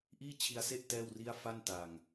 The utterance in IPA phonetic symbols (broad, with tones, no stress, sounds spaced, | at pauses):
ʔ iː˥˩ t͡ɕʰ i˧ a̯ s e˥˩ ʔ t ɛː˥˩ w r i˥˩ a̯ f a˥˩ n t a˨˩ ŋ